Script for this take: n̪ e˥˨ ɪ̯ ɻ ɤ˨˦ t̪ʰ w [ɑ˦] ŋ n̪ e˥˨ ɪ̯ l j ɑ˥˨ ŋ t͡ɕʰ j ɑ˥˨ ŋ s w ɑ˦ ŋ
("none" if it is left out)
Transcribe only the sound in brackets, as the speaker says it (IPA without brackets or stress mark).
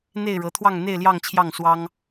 ɑ˥˨